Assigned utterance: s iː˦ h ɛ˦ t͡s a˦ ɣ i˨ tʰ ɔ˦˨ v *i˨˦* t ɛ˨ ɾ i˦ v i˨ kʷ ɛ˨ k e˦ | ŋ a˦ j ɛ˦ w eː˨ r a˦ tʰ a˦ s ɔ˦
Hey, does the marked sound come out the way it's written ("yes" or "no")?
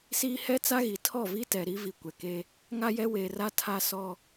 no